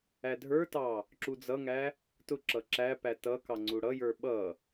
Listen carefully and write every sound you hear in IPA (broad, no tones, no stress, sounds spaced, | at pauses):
æ dʱ ə˞ t ɑ | ǁ u d͡z ʌ ŋ æ | t ʊ ǁ ʌ ǁ æ p æ t ʌ k ɑ ŋ͡ǀ u ɽ ʌ j ə˞ ɓ ʌ